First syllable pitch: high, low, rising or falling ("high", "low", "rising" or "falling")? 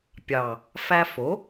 low